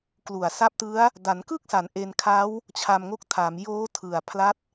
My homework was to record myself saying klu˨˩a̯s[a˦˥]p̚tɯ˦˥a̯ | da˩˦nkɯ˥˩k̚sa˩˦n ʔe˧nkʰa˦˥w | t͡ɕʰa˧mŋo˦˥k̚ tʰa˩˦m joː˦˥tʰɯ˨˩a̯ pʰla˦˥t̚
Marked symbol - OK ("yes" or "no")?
yes